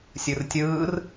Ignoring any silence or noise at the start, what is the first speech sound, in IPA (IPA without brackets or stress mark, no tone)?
sʲ